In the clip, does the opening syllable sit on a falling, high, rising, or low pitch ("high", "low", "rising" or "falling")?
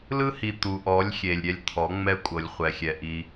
high